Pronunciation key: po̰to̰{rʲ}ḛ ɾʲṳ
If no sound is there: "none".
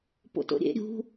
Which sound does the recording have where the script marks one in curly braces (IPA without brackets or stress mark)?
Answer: ɾʲ